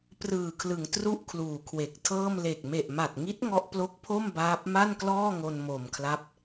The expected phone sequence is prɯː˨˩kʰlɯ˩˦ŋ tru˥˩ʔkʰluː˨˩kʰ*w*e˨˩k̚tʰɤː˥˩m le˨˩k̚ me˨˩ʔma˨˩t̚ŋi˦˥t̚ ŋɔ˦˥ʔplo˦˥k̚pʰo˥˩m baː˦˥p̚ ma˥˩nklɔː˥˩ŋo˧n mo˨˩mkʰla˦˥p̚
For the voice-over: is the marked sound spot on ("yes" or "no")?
yes